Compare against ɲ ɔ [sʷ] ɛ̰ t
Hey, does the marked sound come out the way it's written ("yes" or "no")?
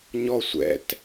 yes